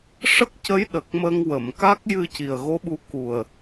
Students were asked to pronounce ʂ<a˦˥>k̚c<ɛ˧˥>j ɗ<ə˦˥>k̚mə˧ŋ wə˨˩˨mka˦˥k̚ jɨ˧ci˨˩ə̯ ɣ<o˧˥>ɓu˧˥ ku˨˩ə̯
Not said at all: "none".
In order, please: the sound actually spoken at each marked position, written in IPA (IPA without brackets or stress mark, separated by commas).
ə˦˥, ə˧˥, ə˨˩, o˧˥